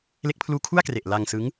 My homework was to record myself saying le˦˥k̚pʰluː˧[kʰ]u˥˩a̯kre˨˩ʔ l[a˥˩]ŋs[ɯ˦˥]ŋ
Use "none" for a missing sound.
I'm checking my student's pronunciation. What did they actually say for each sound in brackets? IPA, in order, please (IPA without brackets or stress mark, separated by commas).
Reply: kʰ, a˧, ɯ˦˥